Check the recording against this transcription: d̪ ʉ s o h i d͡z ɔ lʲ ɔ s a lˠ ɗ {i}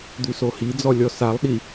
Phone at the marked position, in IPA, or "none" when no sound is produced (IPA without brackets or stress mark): i